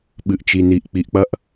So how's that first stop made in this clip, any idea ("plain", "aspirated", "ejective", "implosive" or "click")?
implosive